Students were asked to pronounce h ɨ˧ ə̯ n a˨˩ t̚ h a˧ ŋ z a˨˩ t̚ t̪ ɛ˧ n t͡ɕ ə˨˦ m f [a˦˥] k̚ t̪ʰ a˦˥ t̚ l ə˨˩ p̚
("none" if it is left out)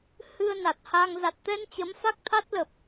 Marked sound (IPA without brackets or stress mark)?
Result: a˦˥